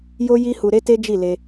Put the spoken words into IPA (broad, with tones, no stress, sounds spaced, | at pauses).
j o˦ j i˦ h u˧ ɾ e˦ t e˦ d͡ʒ i˦˨ l e˧